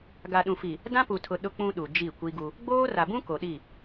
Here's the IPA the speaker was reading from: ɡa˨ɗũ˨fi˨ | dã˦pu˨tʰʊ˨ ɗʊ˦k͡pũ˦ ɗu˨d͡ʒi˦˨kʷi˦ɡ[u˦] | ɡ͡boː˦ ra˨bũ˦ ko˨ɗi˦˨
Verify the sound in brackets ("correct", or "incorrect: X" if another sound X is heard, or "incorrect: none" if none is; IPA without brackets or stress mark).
correct